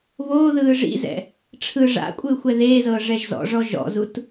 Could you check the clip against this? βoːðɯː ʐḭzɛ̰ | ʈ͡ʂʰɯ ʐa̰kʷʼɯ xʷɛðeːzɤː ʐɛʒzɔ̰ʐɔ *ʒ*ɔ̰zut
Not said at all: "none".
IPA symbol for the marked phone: ʒ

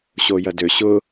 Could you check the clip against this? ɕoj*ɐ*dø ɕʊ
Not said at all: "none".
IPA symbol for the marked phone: ɐ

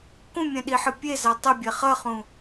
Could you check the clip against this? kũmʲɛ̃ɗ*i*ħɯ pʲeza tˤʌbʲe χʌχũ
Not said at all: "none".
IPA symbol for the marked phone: i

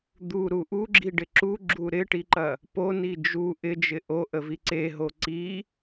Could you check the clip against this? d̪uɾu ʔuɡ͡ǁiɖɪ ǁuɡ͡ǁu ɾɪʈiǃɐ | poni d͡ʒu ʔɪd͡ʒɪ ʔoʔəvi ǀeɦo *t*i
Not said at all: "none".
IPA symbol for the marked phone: ǀ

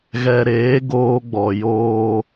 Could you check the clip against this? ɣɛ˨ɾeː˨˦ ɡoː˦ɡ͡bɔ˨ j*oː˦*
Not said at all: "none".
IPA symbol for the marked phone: oː˦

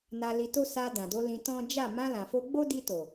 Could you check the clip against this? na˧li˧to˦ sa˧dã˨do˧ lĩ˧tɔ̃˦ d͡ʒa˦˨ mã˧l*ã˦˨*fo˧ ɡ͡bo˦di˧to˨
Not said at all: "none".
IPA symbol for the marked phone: ã˨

